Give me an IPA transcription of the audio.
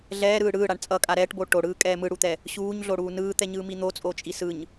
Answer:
ɮ ɛː ɾ ɯː ɽ ɯː ɽ a ɳ t͡sʼ ʌ kʼ a ɾ ɛː ʈ b o ʈ o ɽ ɯː kʼ ɛː m ɯ ɽ u t̪ ɛ | ɕ uː ɲ ɮ o ɽ uː n ɯː t̪ ɛ ɲ ɯː m i n̪ o t͡sʼ o t͡ʃʼ i s ɯ ɲ

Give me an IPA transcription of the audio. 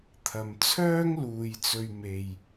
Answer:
t̪ʰ ɐ˨ m t͡sʰ œː˥ ŋ l uː˨ j t͡s ɵ˨ ɥ m e˨ j

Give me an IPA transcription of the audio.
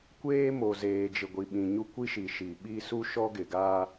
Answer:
kʷ eː˦ m o˨ z eː˨ d͡ʒ ɪ˨ ɡʷ i˨ ɓ ĩ˨ ɲ u˦ kʷ i˦ ʃ i˨ ʃ i˨ ɓ i˦ s u˦ ʃ ɔ˦ ɡ ɪ˨ ɡ aː˦

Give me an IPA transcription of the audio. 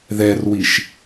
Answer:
ð ɛ r w i ʃ

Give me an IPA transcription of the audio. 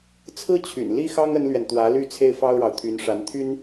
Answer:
t͡sʰ ɹ̩˥ t͡ɕʰ y̰˨˩ n l i˥ x ɑ˥ ŋ ə˥ n l ɥ ɛ˨ n t̪ w ä˧˥ l y˥˧ t͡sʰ e˥˩ ɪ̯ f ɑ˥ ʊ̯ ɻ ɑ˨ ʊ̯ t̪ʰ y˧˥ n ʂ a˧˥ n t̪ʰ y˥ n

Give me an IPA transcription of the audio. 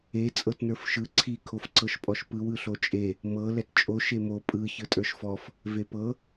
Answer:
e t͡sʼ ɤ t n ə˞ f ʃ ɯ ǀʰ i kʰ o f ǀ ɤ ʃ pʼ ɔ ʃ p ɯ w ɯ ɬ o t͡ʃʼ e | m ɤ l ɛ t t͡ʃʼ o ʃ e m o pʼ ɯ ç ɯ tʼ ə˞ ʃ f ɔ f | v e p ɤ

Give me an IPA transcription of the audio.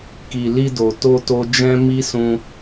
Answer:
k i˨ l i˧ d o˨ t o˧ t o˧ d͡ʒ ɛ̃˦ m i˦ s ũ˧

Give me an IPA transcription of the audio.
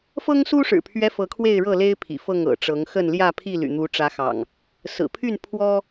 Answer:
f ɤ˦ ŋ s u˦ ʂ ɻ̩˨˩ pʰ ɥ ɛ˦ f ɤ˨˦ kʰ w e˥˨ ɪ̯ ɻ ɤ˥˨ l e˦ ɪ̯ pʰ ḭ˨˩ f ɤ˥˨ ŋ ɤ̰˨˩ ʈ͡ʂ ɤ˨˦ ŋ x ə˥˨ n l j ä˥˨ pʰ i˥˨ l y̰˨˩ n̪ u˨˦ ʈ͡ʂ ä˨˦ x ɑ̰˨˩ ŋ | s ɹ̩˨˩ pʰ y˥˨ n pʰ w ɔ˦

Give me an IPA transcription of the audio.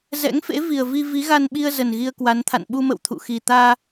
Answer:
z ɛ̰˧˥ ŋ f ḛ˧˥ v i˨˩ ə̯ v i˧ v i˨˦ ɣ a˧ n ɓ i˧ ə̯ z ə˨˩ n ɣ i˧ ə̯ k w a˨˦ n t̪ʰ a̰˧˨ n ɓ u˧ m ə̰˧˨ w t̪ʰ ṵ˧˨ x i˨˩ t̪ aː˧

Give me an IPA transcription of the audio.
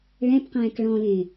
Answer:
ɭ ɛ̃ p q ɛ̃ː k ɭ ɔ̃ l ẽ

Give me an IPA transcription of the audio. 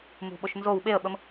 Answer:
m ṳ ɓ o ʃ n z o w ɓ e ə̯ ɓ ə m

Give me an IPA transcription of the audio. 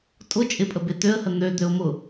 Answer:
tʼ ʊ t͡ʃʼ ɪ pʼ ə b e t̪ ø ə̯ h ə n̪ ø d̪ ø ʊ̯ m ʊ

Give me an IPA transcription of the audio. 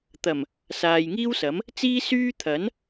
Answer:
t̪ ɐ˨˩ m | s aː˨ j ŋ iː˥ w s ɐ˨˥ m | t͡s iː˥ s yː˥ t̪ʰ ɐ˨˥ n

